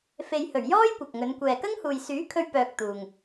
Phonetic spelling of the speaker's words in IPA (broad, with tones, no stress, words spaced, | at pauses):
fe˨jhɵ˨˩ɥ jɔː˥j kʷɐ˨k̚ŋɵ˨˧n kʷɛː˨kɐ˥ŋhuː˨j syː˨˥kʰɵ˧ɥ pœː˧k̚t̪uː˨ŋ